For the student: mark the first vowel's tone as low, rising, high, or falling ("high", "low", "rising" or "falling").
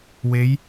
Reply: rising